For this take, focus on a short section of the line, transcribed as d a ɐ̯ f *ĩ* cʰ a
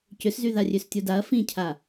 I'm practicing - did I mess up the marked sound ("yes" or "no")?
no